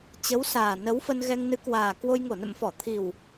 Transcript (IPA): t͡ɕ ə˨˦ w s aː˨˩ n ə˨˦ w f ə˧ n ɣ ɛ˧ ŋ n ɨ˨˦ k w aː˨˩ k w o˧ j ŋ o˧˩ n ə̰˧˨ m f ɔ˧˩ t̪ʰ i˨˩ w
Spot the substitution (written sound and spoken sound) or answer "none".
none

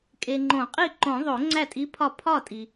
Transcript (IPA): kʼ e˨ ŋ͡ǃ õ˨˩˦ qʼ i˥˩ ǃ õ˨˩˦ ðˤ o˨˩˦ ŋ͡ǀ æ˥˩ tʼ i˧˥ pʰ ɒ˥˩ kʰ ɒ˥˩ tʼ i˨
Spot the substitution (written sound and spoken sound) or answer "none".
kʰ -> pʰ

